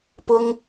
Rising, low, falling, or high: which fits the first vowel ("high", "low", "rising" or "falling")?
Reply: high